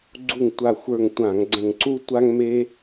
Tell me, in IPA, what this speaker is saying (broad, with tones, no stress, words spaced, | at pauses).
ɡ͡ǀu˧˩ŋtʷa˧˩xʷə˞˧˩ŋ tʷã˧˩˧ŋɡ͡ǀə̃˧˩ŋǀu˥ tʷa˥ŋme˥